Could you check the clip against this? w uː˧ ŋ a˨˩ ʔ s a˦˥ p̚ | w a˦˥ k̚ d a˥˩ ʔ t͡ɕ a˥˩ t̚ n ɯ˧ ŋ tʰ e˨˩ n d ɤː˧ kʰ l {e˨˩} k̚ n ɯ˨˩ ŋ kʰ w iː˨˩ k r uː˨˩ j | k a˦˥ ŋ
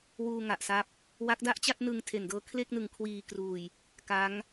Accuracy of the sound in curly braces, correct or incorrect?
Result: incorrect